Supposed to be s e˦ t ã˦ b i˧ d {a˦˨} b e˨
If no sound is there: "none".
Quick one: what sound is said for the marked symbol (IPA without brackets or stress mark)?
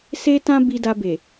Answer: a˧